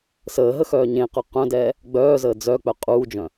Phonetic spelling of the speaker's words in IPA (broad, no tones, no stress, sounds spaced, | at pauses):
s əː ɦ ə x œː ɲ ẽ q œ q œ̃ d ɛː | ɡ͡b œː z əː d͡z œ k͡p œ qʼ uː d͡ʒ œ̃